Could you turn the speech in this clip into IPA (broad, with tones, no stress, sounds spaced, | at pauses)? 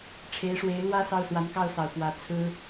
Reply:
ʈ͡ʂʰ e˧˥ ɪ̯ ʂ w e˧˥ ɪ̯ l w ä˥ s ɑ˥˩ ʊ̯ s w a˧˥ n k ɑ˥˩ ʊ̯ s ɑ˨˩ ʊ̯ p w ä˧˥ t͡sʰ ɹ̩˥